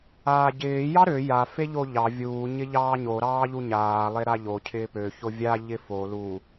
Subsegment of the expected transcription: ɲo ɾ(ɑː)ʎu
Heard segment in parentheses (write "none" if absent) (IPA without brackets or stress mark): ɑː